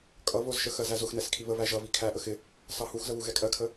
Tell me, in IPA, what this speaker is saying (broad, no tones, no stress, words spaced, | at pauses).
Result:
kʼʌ βʊzʃə xɜzæzʊx nɛskʰiβə βæʒʌβi kʰæʔəx ɪ | sɑhuxzəβu ɣɛkʼɜkʰə